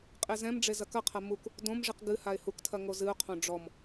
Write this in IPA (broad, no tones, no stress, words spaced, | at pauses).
qʼezɛ̃mɖ͡ʐe zɐkɐqʰɐ muk | dõmʐiq ɡɨ haɪ̯huktʰɐ ŋozɨʊ̯qʰõ ɖ͡ʐɔm